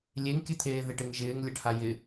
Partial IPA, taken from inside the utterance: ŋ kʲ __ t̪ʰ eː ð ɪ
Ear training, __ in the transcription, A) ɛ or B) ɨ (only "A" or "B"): B